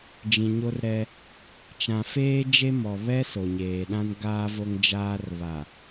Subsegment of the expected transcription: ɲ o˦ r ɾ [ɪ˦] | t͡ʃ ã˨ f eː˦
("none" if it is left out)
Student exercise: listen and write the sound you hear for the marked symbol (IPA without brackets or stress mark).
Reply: ɛ˦